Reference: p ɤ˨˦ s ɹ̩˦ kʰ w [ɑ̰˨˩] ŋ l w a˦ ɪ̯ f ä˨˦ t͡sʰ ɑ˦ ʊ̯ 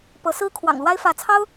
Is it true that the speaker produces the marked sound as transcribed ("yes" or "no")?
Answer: yes